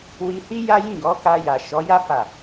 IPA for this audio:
wi˧hi˦ja˦ jĩ˦˨ɡɔ˨˦ka˧ ja˨ʃɔ˨˦ja˦ fa˦˨

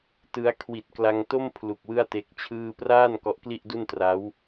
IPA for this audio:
tɯ˦˥a̯ kʰwi˨˩t̚kla˧ŋto˥˩mpʰlu˨˩k̚ wɯ˥˩a̯te˦˥k̚t͡ɕʰɯː˥˩ praː˥˩n kɔ˦˥ʔkli˥˩ʔdu˥˩ntra˦˥w

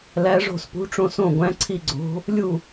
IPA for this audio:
læ˧˥ʐo̤˥˨spṳ˧˥ʈ͡ʂõ˥˨s õ˥˨ɡʷæ̃˧˥ǀʰi˥˨ɡ͡ǀo̤˧˥ | lʲu˥˨

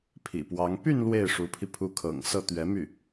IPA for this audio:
pʰḭ˨˩pwɑ˧˥ŋ py˥˧n lwe˥˩ɪ̯ʂu˧˥pʰi˧ pʰu˧˥kʰɤ̰˨˩ŋ sɤ˥˩t̪ɥɛ˧˥my˥˩

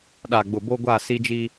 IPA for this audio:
ɗa˨ ɡ͡bʊ˨ bo˦ɡʷa˦˨ si˦d͡ʒi˦

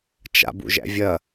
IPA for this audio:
t͡ʃa̰bṵʒæ̰ vʲɐ

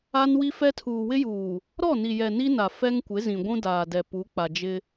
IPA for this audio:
a˦nwi˦fɛ˦ tʰuː˨wɪ˦juː˨ | ɾɔ˦˨ni˨jɛ˨ ni˦na˨ fɛ˦ŋkʷɪ˨˦zĩ˨ ɡʷũ˦daː˨dɛ˨ pu˨˦ k͡pa˨d͡ʒɪ˦

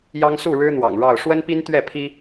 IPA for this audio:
jɑ˦ŋsu˥˨ɻɻ̩˦ n̪wɑ̰˨˩ŋɻɑ˥˨ʊ̯ ʂwə˦n pi˦n t̪ɥɛ˥˨pʰi˦

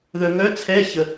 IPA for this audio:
ðœ˨ŋœ˧˥˧t͡sʰɛ˧˥˧çə˨

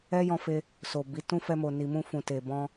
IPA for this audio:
ɛ˦jɔ̃˧fe˧ | so˨bi˨˦ tũ˦fɛ˧ mo˨ni˨mũ˧ fũ˨te˨ bɔ̃˧

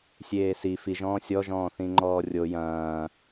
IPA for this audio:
sʲeːsi fiʒɔ̃ː sʲɔʒɔ̃ː θĩŋ͡ǃɔːrʲo jɐ̃ː

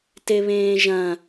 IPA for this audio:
teβẽːʒɐ̃

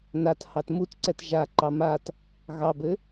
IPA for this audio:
nathɑt mutǀɛt ʒaǃɑ mat | ɣɑbɘ

